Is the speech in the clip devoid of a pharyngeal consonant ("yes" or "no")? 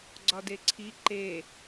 yes